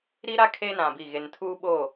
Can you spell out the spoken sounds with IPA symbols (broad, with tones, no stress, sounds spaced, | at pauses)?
ɾ i˦ ɾ a˦ kʰ e˦ n ã˨ b i˦˨ ɣ e˨ n tʰ uː˦ ɓ o˦˨